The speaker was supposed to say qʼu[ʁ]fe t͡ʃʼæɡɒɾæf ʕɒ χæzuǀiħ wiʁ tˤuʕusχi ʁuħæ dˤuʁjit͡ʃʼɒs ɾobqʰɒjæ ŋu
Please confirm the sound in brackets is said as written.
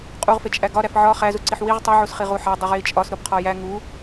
yes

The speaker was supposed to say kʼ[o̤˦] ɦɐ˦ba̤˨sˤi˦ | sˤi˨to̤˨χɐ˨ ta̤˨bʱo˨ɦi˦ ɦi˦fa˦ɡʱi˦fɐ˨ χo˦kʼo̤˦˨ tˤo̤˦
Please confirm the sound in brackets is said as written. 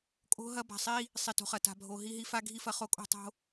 yes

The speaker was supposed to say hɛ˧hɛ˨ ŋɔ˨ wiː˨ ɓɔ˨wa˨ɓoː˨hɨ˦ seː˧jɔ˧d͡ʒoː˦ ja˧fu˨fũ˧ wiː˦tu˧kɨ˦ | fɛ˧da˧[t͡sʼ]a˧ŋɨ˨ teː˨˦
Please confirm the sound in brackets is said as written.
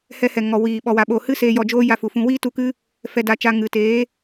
no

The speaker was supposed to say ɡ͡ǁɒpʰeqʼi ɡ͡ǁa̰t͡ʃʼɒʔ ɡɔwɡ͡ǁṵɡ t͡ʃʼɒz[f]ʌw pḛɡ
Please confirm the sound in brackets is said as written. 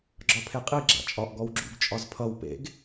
no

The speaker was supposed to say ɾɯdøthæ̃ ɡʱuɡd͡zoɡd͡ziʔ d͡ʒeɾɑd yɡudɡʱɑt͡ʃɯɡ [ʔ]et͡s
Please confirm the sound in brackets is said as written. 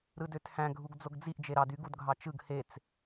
no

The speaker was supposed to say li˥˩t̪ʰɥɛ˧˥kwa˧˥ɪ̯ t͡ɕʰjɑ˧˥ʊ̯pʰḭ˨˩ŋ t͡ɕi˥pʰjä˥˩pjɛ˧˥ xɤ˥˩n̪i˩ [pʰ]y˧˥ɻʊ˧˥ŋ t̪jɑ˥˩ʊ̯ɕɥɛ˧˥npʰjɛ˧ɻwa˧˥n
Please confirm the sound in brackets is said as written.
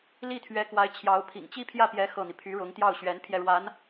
yes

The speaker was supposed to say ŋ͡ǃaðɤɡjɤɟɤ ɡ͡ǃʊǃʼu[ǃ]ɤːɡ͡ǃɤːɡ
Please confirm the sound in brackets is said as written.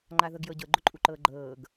yes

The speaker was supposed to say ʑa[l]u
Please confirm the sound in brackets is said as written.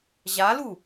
yes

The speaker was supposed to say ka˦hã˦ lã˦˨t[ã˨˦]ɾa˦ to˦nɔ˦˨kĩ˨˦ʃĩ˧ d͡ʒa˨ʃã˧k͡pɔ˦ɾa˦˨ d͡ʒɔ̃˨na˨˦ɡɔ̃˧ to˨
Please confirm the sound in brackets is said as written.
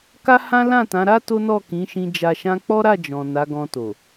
yes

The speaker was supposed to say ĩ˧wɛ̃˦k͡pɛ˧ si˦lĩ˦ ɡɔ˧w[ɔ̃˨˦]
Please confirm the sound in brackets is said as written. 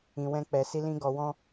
no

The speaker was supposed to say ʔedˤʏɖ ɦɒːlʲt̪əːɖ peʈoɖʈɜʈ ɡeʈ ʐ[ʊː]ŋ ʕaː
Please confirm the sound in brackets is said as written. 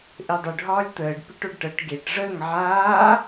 no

